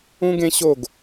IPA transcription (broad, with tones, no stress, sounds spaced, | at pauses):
ũ˦ ɡ ẽ˦ ɕ o˦˨ ɡ